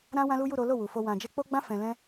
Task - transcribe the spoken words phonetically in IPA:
ɾã˦ wã˦lu˦ ju˦˨ɾo˨˦ lo˦˨wu˨fo˧ wã˨d͡ʒe˧k͡po˦ɡ͡bã˦ fɛ̃˧lɛ̃˦

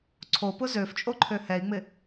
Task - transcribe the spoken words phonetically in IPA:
ǀʰopʊ zøft͡ʃʼoǃʰø hɛi̯ŋ͡mɪ

